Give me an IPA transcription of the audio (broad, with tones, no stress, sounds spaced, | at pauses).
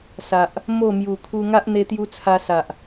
s a˨ ʔ | m o˥˧ m j u˨˩ kʰ u˧ ŋ a˦ ʔ n̪ e˧ t̪ j u˧ t͡sʰ a˧ s a˨ ʔ